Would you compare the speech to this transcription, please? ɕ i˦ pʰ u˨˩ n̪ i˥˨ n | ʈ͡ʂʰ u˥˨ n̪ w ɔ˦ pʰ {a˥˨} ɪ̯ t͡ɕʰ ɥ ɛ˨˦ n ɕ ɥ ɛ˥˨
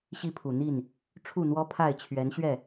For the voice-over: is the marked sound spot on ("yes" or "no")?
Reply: yes